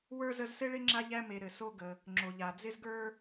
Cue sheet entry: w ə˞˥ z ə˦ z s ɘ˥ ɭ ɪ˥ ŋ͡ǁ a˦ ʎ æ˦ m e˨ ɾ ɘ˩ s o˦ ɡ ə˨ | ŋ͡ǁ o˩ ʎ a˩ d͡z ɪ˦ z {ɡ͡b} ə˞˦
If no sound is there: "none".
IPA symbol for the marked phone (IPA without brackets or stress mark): ɡ